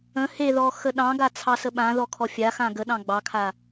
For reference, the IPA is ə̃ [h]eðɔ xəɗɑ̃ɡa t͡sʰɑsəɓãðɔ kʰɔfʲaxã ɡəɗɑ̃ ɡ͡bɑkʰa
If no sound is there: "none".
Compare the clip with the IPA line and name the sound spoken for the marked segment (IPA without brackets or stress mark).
h